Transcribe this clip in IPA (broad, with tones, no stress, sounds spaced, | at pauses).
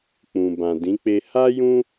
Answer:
k͡p ũ˨ b ã˨ d ĩ˨˦ k͡p e˧ h a˦ j ũ˦